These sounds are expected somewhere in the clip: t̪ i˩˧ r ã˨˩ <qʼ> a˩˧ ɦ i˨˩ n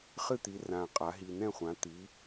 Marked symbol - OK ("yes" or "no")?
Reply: yes